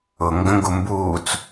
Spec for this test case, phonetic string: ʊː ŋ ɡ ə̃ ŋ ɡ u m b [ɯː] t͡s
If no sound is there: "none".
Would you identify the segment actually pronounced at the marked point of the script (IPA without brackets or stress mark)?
uː